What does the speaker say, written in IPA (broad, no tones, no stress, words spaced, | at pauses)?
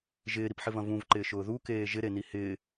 ʒɪːɾipħɪvɐ̃ vũvǃɪːʃʊː ðukeː ʒɪɾeni hɪː